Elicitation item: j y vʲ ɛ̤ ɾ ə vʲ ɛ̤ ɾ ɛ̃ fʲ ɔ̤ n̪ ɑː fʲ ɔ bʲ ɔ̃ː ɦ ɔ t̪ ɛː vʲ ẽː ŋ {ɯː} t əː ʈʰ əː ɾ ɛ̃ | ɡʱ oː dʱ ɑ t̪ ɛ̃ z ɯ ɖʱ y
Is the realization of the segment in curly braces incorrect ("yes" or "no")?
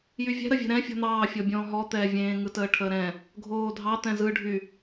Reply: yes